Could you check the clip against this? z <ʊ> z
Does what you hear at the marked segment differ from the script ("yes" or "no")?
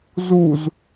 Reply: yes